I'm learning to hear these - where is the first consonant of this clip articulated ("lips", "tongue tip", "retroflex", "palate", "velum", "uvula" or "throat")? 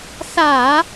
tongue tip